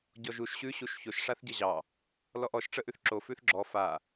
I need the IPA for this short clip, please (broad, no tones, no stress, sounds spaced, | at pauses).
ɟ ɔ ʒ u ʃ ɕ ʉ ɕ u ʃ ç o ʃ ʂ a θ ɟ ə ʑ ɑ | l ɔ ʔ ɔ ʃ ʈ͡ʂ ə ʔ ʉ θ ǁ o f ʉ θ ɡ͡ǁ ɔ f a